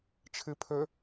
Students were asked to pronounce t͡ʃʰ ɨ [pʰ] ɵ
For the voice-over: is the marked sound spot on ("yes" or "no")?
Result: yes